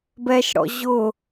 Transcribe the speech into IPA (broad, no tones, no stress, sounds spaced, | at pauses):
b ɛ ʃ ɽ ɔ̰ ʑ ʊ